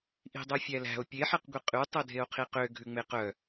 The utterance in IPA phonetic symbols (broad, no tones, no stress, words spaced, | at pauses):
ʔi̤dˤœfʲælæ̤o̯ pʲeħeqɡʷi qʼy tˤœdʱeo̯qʰiqø ɡʱʉŋ͡meqœ